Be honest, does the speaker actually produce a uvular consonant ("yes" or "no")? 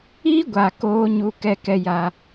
no